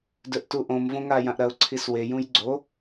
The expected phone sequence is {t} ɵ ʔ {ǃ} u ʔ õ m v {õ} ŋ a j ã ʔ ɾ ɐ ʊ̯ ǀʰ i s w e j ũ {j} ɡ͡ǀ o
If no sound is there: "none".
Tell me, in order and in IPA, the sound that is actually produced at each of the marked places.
d, t, õ, j

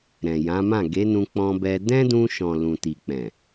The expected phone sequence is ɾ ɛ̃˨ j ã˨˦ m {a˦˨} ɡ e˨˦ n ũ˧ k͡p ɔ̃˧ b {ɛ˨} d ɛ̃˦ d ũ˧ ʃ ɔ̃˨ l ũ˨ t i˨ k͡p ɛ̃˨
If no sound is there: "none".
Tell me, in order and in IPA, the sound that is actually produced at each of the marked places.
ã˦˨, ɛ˧

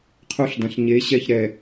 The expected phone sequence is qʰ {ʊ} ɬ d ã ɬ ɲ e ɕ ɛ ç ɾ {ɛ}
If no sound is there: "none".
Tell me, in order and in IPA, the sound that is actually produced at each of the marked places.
u, ɛ

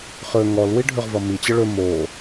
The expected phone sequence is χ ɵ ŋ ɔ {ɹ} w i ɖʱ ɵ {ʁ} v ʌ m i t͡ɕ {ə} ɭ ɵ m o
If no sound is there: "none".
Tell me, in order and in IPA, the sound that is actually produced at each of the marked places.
l, ʁ, ə

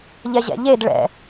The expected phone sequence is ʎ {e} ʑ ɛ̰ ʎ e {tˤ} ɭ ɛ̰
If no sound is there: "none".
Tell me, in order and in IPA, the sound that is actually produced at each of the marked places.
ɛ, d

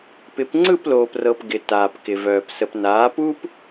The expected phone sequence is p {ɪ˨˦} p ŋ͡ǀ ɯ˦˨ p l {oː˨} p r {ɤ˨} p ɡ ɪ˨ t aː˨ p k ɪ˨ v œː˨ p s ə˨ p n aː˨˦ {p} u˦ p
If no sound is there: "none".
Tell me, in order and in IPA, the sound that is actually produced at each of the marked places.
ɪ˨˦, oː˨, ɤ˨, p

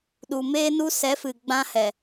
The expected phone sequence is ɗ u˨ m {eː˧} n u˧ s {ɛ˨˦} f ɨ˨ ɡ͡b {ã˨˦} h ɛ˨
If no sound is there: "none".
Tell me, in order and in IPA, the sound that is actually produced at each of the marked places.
eː˧, ɛ˨˦, ã˧

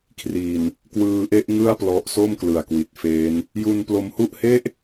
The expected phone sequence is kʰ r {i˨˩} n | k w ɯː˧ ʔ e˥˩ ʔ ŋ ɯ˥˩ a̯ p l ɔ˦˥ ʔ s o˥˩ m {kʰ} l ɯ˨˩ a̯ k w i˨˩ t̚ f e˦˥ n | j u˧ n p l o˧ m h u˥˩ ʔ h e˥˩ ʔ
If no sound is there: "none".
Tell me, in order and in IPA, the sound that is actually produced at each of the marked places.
i˨˩, k

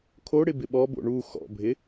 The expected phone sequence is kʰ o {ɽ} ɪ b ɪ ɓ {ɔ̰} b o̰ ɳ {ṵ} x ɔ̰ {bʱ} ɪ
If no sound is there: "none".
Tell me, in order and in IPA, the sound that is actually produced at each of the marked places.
ɽ, ɔ, u, bʱ

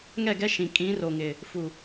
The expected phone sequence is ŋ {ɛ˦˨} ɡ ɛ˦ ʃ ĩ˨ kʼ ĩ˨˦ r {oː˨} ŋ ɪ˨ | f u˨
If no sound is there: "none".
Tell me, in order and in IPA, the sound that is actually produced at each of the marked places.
ɛ˦˨, o˨

